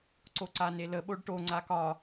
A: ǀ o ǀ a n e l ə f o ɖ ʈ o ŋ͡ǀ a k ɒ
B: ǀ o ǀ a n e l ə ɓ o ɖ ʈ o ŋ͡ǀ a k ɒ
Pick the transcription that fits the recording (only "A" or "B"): B